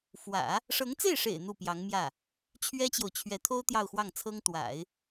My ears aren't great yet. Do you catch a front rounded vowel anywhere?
no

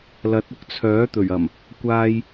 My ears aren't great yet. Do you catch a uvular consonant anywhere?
no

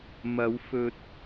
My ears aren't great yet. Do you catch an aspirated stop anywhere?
no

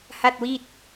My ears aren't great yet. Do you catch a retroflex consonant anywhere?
no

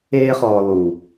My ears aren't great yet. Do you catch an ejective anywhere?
no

